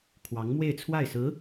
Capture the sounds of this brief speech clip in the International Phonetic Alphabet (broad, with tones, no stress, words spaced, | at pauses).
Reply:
kʰwɑ˧˥ŋmwe˥˧ɪ̯t͡sʰwa˥˩ɪ̯sɹ̩˧˥